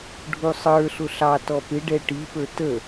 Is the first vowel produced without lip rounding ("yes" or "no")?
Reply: no